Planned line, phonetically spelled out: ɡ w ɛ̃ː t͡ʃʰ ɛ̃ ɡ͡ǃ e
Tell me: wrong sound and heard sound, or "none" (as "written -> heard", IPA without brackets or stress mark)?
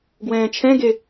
ɡ͡ǃ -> ɡ